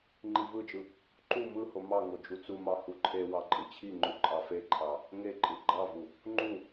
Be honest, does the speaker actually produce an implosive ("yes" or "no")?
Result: no